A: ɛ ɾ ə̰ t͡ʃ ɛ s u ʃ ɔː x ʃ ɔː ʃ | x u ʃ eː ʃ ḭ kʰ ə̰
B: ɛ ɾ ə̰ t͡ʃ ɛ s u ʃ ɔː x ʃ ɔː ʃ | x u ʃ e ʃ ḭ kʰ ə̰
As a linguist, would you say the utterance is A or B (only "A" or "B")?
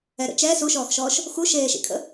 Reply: A